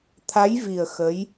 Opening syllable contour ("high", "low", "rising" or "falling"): rising